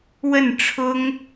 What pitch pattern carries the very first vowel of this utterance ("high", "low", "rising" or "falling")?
falling